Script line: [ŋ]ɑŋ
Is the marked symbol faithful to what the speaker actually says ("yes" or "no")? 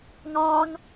yes